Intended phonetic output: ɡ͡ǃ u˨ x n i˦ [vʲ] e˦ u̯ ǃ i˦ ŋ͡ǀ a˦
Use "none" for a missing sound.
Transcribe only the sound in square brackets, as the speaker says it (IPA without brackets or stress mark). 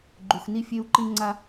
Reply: fʲ